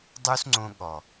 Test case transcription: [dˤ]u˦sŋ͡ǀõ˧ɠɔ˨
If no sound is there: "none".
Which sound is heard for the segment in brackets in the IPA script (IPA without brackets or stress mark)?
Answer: dˤ